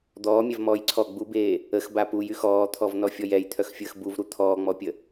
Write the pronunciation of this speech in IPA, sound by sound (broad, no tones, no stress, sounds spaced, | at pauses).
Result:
d̪ ɔː mʲ ɛ v m ɔː j ǀʰ ɔ ɡ͡b u b eː | ə x b a p u j y x ɔː t̪ʰ ɔ v n ɔ fʲ ɔ j ɛ j t̪ʰ œ x fʲ əː x b u v ɾ u t̪ʰ ɔː ŋ͡m ɔ pʲ ə